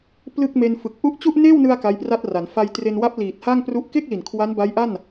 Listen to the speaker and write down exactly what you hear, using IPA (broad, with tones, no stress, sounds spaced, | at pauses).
p l ɯ˥˩ k̚ m e˧ n f ɯ˨˩ k̚ ʔ u˥˩ ʔ t͡ɕ u˥˩ ʔ n eː˥˩ w n ɯ˧ a̯ k a˦˥ j p r a˥˩ t̚ r a˩˦ n f a˧ j t r e˧ n w a˦˥ p̚ l iː˨˩ t̚ h a˥˩ ŋ p r u˦˥ ʔ k e˥˩ k̚ l i˨˩ n kʰ w a˦˥ n b a˦˥ j ʔ a˥˩ n